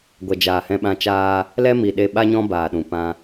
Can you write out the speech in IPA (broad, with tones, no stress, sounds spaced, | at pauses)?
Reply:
ɡʷ ɛ˨ d͡ʒ aː˨ h ɛ̃˧ ɓ ã˧ t͡ʃ aː˦ | l ɛ˦ m i˨ ɗ e˧ ɓ a˦ ɲ ɔ̃˦ b aː˨ ɗ ũ˨ p ã˧